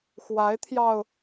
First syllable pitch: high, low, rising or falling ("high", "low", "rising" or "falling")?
rising